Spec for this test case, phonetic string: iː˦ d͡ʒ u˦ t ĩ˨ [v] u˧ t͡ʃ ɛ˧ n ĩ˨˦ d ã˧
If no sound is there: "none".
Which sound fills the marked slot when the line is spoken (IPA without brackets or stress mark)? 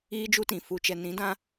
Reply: f